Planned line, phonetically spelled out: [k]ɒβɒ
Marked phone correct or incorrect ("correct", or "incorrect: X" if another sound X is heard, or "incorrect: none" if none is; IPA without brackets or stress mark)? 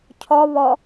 incorrect: cʰ